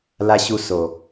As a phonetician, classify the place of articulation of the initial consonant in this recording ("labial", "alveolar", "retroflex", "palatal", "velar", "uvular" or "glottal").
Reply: alveolar